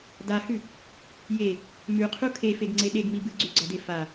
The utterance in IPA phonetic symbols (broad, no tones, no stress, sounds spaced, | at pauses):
d a h ʉ | j e | m ʉ qʰ u kʰ e f e ɡ ŋ͡ǀ e ɗ e ɡ m i b ɨ ɡ͡ǀ ʉ ɡ͡ǀ ɐ d e f a